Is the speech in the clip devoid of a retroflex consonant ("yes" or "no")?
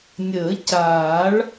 no